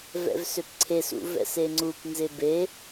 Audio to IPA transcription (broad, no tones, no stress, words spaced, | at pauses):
vɛ̰vsøpǀʰesṵ vɛ̰seŋ͡ǀupnzɪ be